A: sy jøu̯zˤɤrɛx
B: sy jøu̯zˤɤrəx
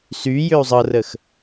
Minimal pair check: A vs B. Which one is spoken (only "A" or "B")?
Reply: B